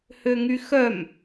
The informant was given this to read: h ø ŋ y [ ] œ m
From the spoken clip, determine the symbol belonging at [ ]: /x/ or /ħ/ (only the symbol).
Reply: x